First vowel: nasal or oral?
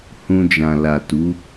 nasal